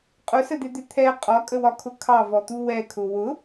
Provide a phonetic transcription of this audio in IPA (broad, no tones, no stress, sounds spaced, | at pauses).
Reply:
qʼ ʊ s ə d̪ ɪ d̪ ɪ t̪ʰ ɛ qʼ ɒ kʼ ə w ɒ kʰ ʊ kʰ ɑ v ɔ t̪ u w ɛ kʰ ʊ w ʊ